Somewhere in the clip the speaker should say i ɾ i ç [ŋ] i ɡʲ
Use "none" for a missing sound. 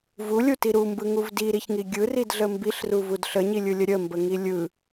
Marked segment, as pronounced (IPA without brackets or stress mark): ŋ